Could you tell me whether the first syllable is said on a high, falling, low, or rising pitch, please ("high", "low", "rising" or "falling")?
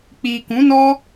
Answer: low